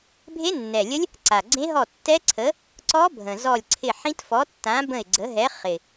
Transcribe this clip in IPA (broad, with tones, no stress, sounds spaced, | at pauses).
bʱ e˦˥ nː ɛ˨˩ lʲ ə˦˥ lʲ | ǀ a˨˩ ɡ͡ǀ ẽ˦˥ ɦ ɔ˦˨ tː ɛ˦˥ ǀʰ ə˨˥ | ǀ ɔ˦˥ bʱ ə̃˨˩ z ɔ˦˨ lʲ ǀʰ ɪ˦˨ ħ ĩ˦˥ t f ɔ˨˥ tː ã˨˥ b ə̃˦˨ ɪ̯ ɡ͡ǀ ə˨˥ ɦ ɛ˨˥ χ ɪ˨˩